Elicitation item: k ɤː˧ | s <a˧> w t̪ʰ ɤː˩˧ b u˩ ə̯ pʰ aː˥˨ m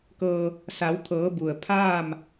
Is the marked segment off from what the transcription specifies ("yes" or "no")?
yes